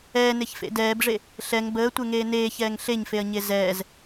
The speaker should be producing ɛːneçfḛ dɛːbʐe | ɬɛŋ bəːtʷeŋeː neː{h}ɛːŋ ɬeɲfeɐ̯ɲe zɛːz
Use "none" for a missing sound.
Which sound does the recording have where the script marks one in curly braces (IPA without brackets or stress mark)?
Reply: ç